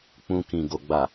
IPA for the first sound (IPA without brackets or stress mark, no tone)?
k͡p